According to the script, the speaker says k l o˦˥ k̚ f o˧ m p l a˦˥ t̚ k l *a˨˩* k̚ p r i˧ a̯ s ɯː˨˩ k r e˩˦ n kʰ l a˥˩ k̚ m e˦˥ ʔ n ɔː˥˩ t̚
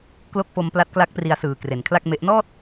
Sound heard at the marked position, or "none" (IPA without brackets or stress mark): a˦˥